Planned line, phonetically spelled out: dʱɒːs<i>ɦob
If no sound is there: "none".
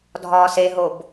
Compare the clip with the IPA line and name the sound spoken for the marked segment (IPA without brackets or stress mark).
e